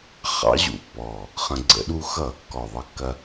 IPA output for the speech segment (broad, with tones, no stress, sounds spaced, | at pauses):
χ ɑ̰˧˥ ʑ ṵ˨˩ pː ɔ˨˩ | χ ə̃˧ ɡ͡ǀ ə̰˧˩˧ ɗ u˧ x ʌː˧˩˧ kː ɔ˨˩ ðˤ ʌ˧ kː ɐ˧